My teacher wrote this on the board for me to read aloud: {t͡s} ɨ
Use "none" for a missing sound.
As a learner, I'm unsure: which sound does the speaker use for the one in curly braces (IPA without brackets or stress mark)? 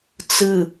t͡s